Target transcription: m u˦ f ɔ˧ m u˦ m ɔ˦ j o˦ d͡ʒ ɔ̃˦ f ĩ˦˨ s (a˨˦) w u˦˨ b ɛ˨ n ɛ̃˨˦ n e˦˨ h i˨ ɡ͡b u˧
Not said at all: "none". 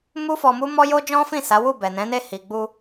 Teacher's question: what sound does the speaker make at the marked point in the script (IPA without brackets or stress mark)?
a˨˦